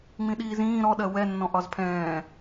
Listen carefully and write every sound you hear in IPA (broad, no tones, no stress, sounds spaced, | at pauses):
ŋ͡m ĩ ɗ iː z ĩː ɾ ɔ ɗ ɜ w ɛ nː ɔ̃ ʔ ɒ z pʰ ɛ̃ː